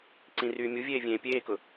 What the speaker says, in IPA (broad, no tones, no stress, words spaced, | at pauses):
ǀĩryːmʲuvʲeː vʲẽːpʲeːkʊ